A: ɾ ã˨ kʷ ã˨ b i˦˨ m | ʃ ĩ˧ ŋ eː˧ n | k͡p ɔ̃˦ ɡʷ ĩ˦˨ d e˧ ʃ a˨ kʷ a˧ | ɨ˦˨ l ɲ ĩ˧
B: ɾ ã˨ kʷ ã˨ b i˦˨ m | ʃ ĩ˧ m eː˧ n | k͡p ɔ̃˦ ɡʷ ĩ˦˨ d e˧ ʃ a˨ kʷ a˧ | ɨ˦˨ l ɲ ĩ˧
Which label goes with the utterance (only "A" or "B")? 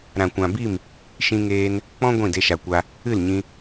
A